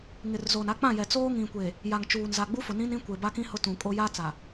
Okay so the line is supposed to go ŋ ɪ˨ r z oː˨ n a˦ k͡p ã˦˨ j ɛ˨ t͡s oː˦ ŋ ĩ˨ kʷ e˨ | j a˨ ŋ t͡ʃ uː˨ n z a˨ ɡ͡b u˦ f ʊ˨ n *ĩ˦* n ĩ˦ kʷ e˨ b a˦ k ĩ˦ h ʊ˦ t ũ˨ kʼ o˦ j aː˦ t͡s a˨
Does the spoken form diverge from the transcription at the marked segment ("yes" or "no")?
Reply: no